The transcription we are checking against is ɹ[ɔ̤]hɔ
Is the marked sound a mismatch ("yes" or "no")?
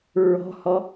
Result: no